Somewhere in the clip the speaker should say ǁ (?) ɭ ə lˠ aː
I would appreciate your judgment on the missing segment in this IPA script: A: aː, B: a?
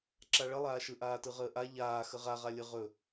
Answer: B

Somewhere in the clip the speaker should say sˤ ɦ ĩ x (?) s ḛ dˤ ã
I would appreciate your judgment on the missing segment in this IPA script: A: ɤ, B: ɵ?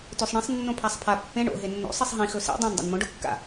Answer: B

